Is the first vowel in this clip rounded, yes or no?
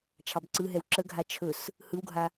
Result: no